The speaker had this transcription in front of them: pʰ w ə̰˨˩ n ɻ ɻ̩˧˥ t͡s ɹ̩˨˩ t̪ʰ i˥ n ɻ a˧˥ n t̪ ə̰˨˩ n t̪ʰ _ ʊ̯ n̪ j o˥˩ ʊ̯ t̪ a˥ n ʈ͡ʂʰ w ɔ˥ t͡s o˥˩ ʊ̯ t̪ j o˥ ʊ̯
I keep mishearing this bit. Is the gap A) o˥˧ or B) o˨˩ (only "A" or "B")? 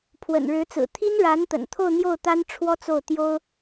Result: A